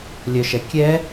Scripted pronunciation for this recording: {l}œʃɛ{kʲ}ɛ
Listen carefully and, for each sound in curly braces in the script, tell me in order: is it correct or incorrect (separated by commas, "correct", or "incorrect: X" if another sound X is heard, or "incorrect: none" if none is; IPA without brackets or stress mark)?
incorrect: lʲ, correct